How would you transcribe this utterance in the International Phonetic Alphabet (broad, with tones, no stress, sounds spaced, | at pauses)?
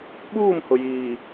ɓ uː˦˨ m h ʊ˨ j iː˨